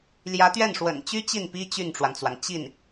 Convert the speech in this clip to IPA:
ljä˧˥t̪ɥɛ˥˩nʂwə̰˨˩n t͡ɕy˥ t͡ɕi˥˩npi˥ t͡ɕy˥˩nʈ͡ʂwa˩nt͡swa˩n t͡ɕi˥˩n

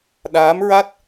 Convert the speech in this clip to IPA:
ɗaː˧˥mɹa˦˥t̚

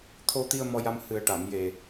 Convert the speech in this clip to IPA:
t̪ʰo˧t̪i˧ə̯ mɔ˧ja˧m hɨ˨˩ə̯ʈa˨˩˨mje˨˩

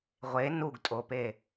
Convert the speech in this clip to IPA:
ʁʷe nuɡtʼope

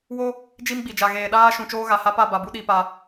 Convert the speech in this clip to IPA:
wo˦ | d͡ʒi˦mɡ͡bi˨d͡ʒa˨ ɣeː˨ ɗaː˦ʃũ˨ t͡ʃoː˦ɣa˨ha˦ pa˦˨ba˨bu˦ ɗi˦pa˦

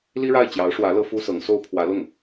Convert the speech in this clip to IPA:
li˥ɻa˥˩ɪ̯ t͡ɕjɑ˧˥ʊ̯ʂwä˧˥ lɤ˥fu˥sɤ˧˥ŋso˥ʊ̯ pʰwä˧˥lʊ˥˩ŋ

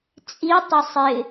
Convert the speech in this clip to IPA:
t͡sʼitˤɪ sˤɪ

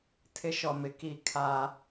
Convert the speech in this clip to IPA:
tʰɪ˦ ʃɔ˨mɪ˨ ki˦˨ kʰa˦

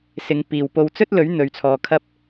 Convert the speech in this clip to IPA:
sɪ˨˧ŋpiː˨w po˧wt͡sɵ˥t̚lɵ˨˥ɥ n̪ɵ˨˧ɥt͡sʰɔː˧kʰɐ˥p̚

